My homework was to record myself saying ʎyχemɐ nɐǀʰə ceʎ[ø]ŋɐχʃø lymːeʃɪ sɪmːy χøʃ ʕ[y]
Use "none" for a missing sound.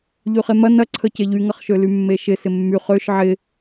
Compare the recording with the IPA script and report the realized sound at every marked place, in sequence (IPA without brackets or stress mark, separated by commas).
y, ɪ